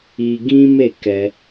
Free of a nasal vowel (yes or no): no